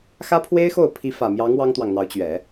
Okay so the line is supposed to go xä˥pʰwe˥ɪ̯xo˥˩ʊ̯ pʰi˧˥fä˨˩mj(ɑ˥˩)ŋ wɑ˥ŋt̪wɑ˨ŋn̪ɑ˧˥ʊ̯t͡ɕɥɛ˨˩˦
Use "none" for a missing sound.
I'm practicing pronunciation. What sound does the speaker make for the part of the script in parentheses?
ɑ˧˥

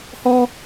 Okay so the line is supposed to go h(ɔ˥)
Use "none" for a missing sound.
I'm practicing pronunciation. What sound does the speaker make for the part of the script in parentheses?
ɔ˥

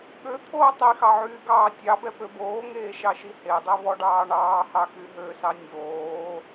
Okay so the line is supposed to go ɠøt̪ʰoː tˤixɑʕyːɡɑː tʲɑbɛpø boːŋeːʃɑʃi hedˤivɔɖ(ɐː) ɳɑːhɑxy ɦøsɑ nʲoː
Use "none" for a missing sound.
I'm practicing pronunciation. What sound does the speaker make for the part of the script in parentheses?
ɑː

